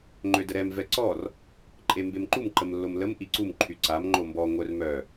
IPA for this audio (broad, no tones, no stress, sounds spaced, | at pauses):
ŋ͡ǃ ø d ə ɾ ɛ m v ɛ ǀ ɔ r | ǃʼ e m b e m ǃ u m ǃ ə m lː o m l ə m ʔ i ǀ u m ǃʰ y ǀ a m ŋ͡ǃ o m b ɔ ŋʷ œ r m œ